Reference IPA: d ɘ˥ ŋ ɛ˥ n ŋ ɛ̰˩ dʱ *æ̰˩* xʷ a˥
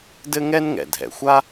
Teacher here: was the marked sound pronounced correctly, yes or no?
no